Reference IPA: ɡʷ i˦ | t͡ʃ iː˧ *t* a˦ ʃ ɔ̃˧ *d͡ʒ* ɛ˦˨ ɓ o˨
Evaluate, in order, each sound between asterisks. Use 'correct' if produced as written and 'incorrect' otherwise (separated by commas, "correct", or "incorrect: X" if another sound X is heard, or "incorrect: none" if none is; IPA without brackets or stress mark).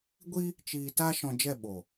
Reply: correct, correct